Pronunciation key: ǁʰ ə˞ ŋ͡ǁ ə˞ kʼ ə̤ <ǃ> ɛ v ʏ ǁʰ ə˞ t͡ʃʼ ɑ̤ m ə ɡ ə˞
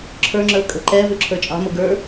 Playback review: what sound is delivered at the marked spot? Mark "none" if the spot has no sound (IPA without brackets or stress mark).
ǃ